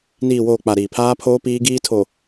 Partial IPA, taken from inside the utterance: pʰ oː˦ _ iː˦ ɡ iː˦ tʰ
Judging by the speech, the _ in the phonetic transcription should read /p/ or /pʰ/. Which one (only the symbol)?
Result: p